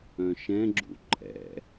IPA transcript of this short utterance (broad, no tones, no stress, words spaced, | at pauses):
œ̃ʃɛ̃ɡ͡ǁṵ ǃʼɛ̰